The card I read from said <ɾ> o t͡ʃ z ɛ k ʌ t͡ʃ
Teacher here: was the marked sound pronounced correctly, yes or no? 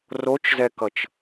no